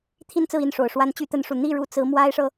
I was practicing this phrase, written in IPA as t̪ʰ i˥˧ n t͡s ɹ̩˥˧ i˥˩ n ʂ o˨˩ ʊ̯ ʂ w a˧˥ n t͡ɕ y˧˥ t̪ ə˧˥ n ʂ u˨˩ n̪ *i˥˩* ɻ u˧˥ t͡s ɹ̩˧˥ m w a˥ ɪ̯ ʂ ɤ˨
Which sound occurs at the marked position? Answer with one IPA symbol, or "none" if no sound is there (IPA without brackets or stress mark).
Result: i˥˩